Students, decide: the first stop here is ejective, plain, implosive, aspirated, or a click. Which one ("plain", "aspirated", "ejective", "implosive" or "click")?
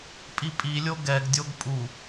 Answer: ejective